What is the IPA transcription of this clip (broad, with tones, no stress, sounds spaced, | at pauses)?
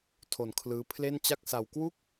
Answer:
tʰ o˨˩ n kʰ l ɯː˦˥ pʰ l e˥˩ n t͡ɕ a˥˩ k̚ s a˧ w k w u˥˩ k̚